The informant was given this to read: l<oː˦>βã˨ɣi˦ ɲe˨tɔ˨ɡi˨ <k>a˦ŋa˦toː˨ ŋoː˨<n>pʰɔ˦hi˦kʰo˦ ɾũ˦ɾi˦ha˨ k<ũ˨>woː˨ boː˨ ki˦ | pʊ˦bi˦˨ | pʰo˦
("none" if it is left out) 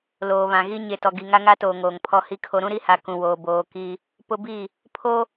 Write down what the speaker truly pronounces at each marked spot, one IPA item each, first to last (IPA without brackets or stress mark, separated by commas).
oː˨, ŋ, ŋ, ũ˨